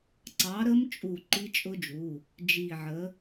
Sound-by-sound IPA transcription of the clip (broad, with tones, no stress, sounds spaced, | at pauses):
ǀ ɑ˨˥ ɾ ə˦˥ m t͡ʃʼ u˧˩ ǃ i˦˥ t͡ʃʼ ʊ˦˥ d͡ʒ u˩˧˩ | d͡ʒ i˧˩ ʕ ə˨˥